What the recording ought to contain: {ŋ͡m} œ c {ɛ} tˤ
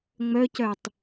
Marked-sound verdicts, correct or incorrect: correct, incorrect: œ

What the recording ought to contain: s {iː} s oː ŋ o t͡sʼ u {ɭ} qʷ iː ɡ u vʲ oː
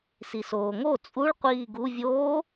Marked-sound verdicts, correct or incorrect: incorrect: i, correct

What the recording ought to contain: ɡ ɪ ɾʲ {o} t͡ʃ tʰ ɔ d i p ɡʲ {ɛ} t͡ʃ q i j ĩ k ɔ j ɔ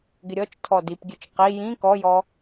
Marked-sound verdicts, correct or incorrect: incorrect: ɔ, incorrect: ɨ

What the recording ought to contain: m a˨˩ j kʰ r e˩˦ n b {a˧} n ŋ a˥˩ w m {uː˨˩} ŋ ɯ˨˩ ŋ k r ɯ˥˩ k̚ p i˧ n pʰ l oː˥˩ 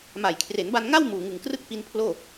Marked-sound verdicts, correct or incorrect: correct, correct

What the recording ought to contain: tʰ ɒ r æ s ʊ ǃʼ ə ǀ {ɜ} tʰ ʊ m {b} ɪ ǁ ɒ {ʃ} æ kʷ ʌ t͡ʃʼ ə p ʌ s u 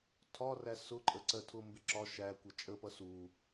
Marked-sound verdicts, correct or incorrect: correct, correct, correct

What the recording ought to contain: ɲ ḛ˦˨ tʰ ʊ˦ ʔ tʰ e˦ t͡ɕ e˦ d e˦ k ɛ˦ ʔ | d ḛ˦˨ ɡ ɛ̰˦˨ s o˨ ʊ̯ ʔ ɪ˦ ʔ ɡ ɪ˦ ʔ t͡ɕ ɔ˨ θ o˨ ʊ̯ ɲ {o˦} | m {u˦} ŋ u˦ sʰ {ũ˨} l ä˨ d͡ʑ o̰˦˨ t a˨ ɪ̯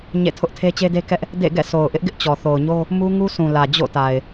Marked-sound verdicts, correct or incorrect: correct, correct, correct

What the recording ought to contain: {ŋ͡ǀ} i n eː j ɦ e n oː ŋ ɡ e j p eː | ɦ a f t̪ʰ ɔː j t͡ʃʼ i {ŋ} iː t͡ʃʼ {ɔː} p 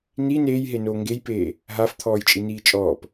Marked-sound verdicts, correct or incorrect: incorrect: n, incorrect: n, correct

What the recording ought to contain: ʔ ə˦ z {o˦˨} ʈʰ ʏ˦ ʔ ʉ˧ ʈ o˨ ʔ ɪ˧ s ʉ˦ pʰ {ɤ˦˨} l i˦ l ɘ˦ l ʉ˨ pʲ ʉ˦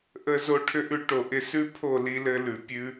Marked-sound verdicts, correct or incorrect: incorrect: o˦, incorrect: o˦˨

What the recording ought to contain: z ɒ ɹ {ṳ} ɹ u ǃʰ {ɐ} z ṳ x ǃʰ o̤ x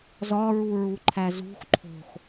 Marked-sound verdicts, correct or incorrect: incorrect: u, incorrect: æ

